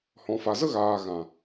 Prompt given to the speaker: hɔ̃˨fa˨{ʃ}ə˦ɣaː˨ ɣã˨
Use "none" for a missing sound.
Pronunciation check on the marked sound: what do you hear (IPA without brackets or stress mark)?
z